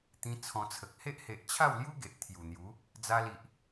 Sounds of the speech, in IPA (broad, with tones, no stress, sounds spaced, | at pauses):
t̪ ĩ˧ t͡sʰ ɔ̃˧ t͡sʰ ə˨ k̚ h e˦ ʔ h e˨ ʔ t͡ɕʰ a˥˧ w l j u˦ ɡ e˨ ʔ t̪ʰ j u˨˩ n̪ j u˨˦ | d͡z a˧ l i˨ ʔ